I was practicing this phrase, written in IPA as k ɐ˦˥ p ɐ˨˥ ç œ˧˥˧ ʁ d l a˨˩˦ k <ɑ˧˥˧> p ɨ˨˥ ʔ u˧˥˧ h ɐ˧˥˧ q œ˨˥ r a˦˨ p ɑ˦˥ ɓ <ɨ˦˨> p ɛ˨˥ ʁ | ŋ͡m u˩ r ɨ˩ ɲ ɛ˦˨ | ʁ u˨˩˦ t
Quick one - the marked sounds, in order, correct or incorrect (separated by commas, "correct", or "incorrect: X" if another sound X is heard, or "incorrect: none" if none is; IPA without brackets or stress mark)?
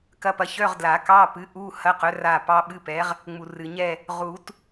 correct, incorrect: ɨ˧˥˧